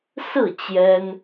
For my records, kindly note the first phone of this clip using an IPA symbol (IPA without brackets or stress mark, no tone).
s